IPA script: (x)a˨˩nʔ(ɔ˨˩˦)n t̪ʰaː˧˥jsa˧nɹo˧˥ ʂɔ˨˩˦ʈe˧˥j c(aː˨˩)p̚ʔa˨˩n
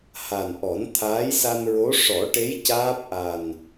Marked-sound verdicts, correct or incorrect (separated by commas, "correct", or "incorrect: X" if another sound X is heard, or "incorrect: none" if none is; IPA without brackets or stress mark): incorrect: h, correct, incorrect: aː˦˥